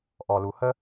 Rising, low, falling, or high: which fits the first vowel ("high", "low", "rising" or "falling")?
low